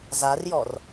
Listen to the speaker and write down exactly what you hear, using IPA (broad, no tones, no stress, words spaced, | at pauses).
zarjɔr